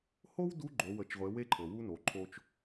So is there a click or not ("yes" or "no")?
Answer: yes